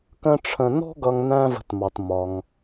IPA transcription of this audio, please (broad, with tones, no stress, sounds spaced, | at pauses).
k ə̃˦ ʈ͡ʂʰ ə̃˨ n ɔ̤˥ ɡ ʌ˨ ŋ n æ̃˦ v ə̤˨ t m ɑ˩ t m ɒ˩ ŋ